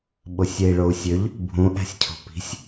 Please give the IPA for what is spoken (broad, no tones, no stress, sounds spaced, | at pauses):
ɓ o sʲ e i̯ ɭ o u̯ sʲ ø ʎ | bʱ ũ ʔ æ̤ sʲ cʰ o̤ p i̤ sʲ